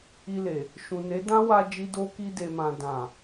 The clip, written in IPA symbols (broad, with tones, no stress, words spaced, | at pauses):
i˧le˨ | ʃũ˨ne˨˦dã˦wa˧ d͡ʒi˧do˧ ki˧de˨mã˨ dã˨